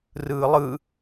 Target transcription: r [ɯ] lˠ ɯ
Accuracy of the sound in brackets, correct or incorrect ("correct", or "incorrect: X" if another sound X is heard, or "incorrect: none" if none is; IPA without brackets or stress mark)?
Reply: incorrect: ɯː